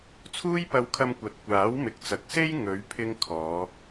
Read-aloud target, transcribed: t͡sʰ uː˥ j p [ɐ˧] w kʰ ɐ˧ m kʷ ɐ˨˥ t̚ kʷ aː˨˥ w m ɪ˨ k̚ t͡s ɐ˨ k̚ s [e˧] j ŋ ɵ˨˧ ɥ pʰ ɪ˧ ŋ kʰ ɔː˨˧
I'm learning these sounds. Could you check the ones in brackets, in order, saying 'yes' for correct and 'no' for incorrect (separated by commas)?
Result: yes, no